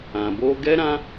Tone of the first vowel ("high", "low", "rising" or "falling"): low